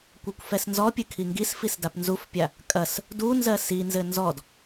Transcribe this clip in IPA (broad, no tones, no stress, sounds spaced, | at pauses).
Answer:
kʷ ɜ kʷ f ɛ s n z ɔ pʲ ɘ kʰ i ŋ ɡ i s f i s d a p n z u f pʲ a | kʼ ɐ s | d u n z ɜ s i n z ɘ n z ɔ d